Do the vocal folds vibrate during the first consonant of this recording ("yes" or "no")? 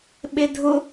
yes